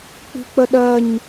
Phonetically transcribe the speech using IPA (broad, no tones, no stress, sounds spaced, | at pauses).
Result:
k͡p i̤ k͡p ə ɗ ɜ ɲ